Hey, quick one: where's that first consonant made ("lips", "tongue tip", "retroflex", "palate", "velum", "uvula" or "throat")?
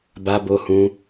lips